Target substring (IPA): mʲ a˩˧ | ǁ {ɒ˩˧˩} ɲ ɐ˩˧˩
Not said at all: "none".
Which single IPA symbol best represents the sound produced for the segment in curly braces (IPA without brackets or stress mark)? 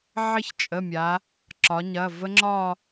ɒ˩˧